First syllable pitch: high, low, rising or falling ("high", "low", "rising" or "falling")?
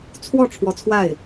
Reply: falling